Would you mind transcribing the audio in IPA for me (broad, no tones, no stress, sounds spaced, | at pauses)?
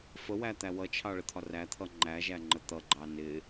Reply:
f ə w æ t̪ æ w ʌ t͡ʃʰ ɑ ɭ ə t̪ʰ ɒ r æ t̪ʰ ʌ ŋ͡ǃ æ ʒ æ ŋ͡ǃ ə t̪ ʌ ɡ͡ǃ ɑ n ɪ